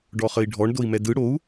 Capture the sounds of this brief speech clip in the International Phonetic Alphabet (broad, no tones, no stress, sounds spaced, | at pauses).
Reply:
ɖ ɔ χ ə i̯ ɖʱ ɔ ɳ d o i̯ m ɛ d ɯ ɽ o u̯